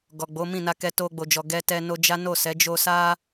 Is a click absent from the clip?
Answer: yes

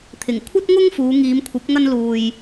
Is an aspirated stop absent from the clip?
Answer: no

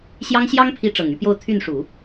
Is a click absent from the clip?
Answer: yes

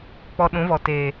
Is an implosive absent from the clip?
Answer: no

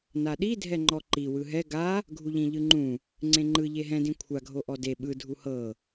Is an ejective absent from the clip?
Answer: yes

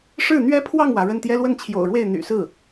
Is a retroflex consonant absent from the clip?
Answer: no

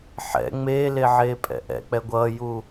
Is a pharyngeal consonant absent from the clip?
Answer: no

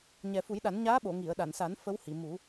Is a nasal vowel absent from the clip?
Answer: yes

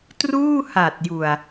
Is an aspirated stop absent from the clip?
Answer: yes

